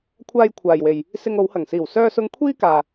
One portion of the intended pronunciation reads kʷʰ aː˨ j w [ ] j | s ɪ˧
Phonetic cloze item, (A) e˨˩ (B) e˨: B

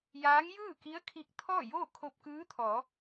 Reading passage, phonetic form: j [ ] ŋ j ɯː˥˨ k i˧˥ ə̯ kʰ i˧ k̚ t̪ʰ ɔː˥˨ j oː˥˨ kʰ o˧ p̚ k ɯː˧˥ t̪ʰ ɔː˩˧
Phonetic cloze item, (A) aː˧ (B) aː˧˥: B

